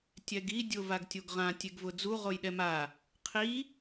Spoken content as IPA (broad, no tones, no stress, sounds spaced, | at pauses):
tʲ ɛ ɡ i dʲ ʊ v a ɡ tʲ o ɡ ʁ ã tʲ e ɡ v ʊ d͡z u ʁ o j ɗ ɛ m a | qʰ i